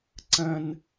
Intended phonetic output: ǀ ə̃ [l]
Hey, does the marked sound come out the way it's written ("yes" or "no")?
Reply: no